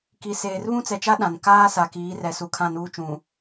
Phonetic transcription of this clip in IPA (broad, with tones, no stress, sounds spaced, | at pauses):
k i˨ s eː˨ r β ũ˦ t͡s ɛ˨ t͡ʃ a˦ ɗ ã˨ n k aː˦ s a˨ k iː˨˦ r ɛ˨ s u˨ kʰ ã˦˨ n uː˦ t͡ʃ ũ˨